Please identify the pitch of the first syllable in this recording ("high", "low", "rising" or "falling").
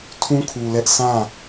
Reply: high